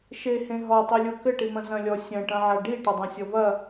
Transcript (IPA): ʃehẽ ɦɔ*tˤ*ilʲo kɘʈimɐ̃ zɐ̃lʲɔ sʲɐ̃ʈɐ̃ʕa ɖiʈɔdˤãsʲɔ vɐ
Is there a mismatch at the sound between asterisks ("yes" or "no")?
no